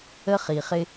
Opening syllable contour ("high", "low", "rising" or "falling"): high